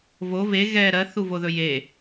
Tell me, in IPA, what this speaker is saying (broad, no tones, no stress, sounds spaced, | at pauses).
v o v e ɣ ɛ ɾ ɜ θ u v o ð ɵ j e